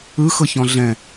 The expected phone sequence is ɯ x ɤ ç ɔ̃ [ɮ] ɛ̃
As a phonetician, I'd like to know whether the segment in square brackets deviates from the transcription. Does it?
no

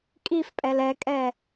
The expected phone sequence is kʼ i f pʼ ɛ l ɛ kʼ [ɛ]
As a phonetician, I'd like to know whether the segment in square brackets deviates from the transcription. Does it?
no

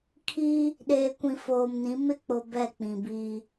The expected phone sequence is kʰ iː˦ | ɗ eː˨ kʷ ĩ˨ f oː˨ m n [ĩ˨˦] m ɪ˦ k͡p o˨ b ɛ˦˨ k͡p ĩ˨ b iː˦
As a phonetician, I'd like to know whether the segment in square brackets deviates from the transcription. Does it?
no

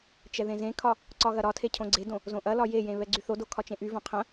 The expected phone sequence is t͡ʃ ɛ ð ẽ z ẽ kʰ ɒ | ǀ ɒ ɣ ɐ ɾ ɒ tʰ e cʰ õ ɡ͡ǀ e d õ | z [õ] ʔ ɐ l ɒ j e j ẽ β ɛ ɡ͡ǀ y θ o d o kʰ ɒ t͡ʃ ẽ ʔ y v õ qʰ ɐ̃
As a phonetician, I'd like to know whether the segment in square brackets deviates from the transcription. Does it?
no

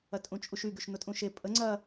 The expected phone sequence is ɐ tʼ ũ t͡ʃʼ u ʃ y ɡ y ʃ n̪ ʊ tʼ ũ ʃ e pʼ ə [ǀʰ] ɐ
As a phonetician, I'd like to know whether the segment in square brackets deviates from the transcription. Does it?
yes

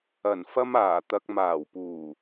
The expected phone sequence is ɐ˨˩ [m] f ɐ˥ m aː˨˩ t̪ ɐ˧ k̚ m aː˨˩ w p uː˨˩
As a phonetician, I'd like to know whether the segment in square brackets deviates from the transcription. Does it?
yes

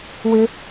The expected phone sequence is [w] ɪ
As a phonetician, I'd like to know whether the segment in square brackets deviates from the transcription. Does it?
no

